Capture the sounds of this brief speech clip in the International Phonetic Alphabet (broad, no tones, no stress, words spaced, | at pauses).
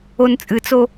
ont͡sʼɨt͡so